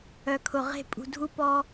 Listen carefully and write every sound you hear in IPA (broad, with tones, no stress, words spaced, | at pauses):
œ˨kʰʊ˨ʁe̤˦˨ pʼṳ˨dʱu˦pɔ˦